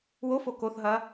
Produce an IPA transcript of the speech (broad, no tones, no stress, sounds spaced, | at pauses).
w o f o k o θ ɦ ɐ